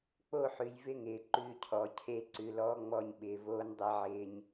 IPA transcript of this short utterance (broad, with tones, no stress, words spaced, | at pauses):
k͡po˦˨ħʉ˨j vɪ˦ŋɪː˨ ǃʉː˦cʰɔ˨˦ cʰe˦ ǀʉ˨lɔː˦ŋ͡mɔ˦˨ɲɓɪː˨ voː˦ndˤe˦ʕɪː˦ɲ